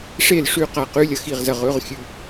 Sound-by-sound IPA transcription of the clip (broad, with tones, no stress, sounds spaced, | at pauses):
ʂ e˥˩ l ʂ ʉ˥˩ q a˧ q ʉ˧˥˧ lʲ ɐ˧ x i˥˩ ʁ z ɐ˥˩ ʁ ɵ˧˥˧ ʁ xʲ ʉ˧